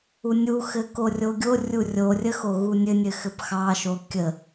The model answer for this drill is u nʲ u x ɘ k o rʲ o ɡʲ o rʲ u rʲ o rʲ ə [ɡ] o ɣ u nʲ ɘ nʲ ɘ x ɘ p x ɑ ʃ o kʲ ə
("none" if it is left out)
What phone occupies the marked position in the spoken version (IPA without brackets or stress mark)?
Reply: x